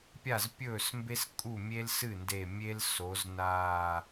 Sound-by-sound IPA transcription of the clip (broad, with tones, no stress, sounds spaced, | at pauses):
pʲ a˥˩ z pʲ ɵː˥˩ s m b e˥ s kʼ u˥˩ mʲ e˥ l s ɨ˥˩ n d e˧˩ mʲ e˥ l s o˩˧ z n aː˧˩